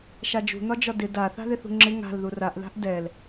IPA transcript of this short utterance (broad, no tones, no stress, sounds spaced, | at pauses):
ʃ a d͡ʒ ṳ n̪ ɒ d͡ʒ ɒ d ɪ d a θ a̤ ð ɪ θ ṳ ŋ͡ǁ ɪ ŋ a̤ l ð u r a ʔ ð a̤ ʔ d ɛ l